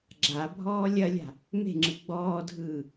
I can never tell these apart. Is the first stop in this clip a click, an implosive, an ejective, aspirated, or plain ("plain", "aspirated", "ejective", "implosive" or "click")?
click